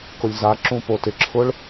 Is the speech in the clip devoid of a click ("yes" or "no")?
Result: no